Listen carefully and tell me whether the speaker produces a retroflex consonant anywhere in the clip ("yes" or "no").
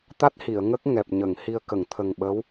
no